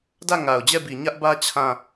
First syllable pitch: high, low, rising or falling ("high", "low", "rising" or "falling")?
falling